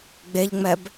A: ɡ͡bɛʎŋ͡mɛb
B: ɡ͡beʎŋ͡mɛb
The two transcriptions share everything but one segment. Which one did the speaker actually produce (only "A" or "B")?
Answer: B